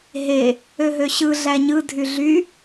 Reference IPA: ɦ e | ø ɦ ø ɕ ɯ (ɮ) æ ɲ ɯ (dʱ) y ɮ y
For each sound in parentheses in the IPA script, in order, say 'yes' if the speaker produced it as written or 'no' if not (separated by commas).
yes, yes